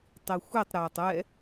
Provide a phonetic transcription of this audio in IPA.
tˤixʷitˤɾaːtˤ ɛ

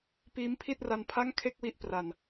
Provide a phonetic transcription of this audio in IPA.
piː˦˥mpʰi˥˩t̚ra˧npʰa˥˩ŋ kʰe˥˩k̚wi˦˥ʔ pra˨˩n

